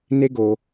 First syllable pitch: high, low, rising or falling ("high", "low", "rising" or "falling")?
high